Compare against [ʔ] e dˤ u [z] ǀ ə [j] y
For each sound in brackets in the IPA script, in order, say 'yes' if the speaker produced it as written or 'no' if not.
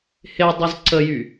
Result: no, yes, yes

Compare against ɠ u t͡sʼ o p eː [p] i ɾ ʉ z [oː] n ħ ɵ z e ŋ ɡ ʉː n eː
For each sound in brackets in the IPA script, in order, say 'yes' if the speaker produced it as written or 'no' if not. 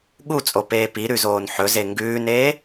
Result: yes, yes

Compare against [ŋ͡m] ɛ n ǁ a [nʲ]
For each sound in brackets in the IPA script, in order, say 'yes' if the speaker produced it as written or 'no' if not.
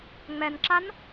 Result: yes, no

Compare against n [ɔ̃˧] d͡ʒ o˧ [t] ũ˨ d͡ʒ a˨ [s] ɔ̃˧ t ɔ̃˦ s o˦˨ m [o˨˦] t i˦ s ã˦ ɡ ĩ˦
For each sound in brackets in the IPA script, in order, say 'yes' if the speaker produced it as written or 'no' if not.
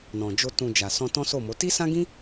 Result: no, yes, yes, yes

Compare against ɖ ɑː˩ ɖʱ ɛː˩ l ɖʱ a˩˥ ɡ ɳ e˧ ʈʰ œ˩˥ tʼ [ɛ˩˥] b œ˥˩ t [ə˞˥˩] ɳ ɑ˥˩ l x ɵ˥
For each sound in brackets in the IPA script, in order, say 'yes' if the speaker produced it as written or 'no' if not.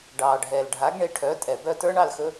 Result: no, no

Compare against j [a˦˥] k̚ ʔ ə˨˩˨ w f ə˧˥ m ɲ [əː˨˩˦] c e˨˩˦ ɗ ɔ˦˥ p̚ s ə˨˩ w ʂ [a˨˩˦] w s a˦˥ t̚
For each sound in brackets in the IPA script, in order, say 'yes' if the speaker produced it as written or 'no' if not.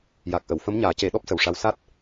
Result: no, no, no

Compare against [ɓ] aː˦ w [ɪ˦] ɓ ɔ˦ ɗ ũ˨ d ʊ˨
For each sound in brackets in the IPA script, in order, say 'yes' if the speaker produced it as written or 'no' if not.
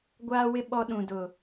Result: no, yes

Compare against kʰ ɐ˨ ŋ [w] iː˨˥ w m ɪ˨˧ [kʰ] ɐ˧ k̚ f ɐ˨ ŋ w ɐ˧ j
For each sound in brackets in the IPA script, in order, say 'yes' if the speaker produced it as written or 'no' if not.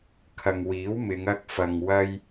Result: yes, no

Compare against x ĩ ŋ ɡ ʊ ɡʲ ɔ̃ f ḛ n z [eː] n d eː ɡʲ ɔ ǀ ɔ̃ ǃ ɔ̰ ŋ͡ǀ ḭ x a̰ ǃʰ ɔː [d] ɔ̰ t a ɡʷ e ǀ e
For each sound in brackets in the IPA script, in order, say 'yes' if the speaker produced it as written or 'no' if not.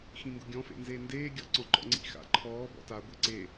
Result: yes, no

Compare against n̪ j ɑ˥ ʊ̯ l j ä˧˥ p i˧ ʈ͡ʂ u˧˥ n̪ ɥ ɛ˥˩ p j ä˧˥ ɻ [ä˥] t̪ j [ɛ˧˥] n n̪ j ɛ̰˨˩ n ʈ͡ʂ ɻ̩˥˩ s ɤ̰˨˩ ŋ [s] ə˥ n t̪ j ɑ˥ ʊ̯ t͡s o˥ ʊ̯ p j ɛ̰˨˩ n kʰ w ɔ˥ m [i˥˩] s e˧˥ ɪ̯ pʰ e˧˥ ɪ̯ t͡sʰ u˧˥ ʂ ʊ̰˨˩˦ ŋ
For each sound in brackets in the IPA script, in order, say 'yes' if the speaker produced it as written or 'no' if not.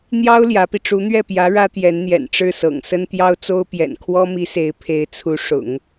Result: yes, yes, yes, no

